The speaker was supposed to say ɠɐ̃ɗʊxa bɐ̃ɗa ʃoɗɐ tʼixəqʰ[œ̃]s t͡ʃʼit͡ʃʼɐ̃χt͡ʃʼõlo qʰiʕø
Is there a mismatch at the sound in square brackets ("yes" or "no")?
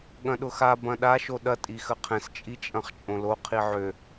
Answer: yes